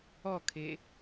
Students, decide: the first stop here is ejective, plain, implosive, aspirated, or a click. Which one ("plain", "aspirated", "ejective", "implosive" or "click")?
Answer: aspirated